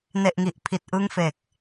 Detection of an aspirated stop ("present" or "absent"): present